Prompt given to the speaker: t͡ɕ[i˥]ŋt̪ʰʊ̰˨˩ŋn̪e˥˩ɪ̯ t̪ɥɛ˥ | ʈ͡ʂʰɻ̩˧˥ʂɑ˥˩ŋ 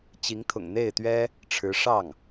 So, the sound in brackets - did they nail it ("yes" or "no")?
no